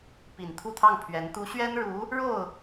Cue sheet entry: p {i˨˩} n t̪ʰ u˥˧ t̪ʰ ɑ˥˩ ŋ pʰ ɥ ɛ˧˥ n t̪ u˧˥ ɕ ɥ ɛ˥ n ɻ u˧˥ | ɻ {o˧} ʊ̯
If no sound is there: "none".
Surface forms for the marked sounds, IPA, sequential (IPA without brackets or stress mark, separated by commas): i˨˩, o˥˩